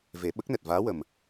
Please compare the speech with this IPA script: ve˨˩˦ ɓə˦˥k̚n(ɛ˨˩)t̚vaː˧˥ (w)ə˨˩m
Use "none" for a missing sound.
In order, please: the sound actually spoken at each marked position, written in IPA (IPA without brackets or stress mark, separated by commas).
ɛ˨˩, w